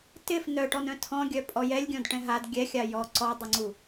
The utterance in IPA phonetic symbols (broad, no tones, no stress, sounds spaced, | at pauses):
t ɪ f n œ ʈ ɔ n œ̃ tʰ ɔ̃ ɡʲ œ pʼ ɔ j ɛ lʲ ɡʲ ɔ̃ d ʈ ɛ̃ ɦ a d ɡʲ ɛ xʲ a j ɔ ǀ ɔ dˤ u ŋ͡ǀ u